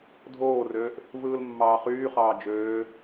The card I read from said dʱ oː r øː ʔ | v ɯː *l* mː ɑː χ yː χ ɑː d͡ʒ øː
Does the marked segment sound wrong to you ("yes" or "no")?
no